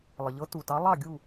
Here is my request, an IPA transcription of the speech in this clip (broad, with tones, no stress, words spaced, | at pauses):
lˠə˨ʎɤ˧˥tu˨tɑ˧˥ lˠɑ˦˨ɡʲu˦˨